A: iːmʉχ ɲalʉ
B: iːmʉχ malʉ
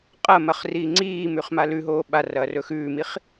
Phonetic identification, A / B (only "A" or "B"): B